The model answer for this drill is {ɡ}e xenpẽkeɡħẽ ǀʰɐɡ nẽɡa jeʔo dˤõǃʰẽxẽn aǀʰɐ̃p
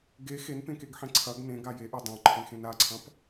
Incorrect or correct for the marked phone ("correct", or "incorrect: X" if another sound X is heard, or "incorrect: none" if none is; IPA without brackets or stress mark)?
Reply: correct